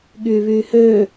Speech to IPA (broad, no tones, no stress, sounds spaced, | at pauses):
ɠ yː β yː h øː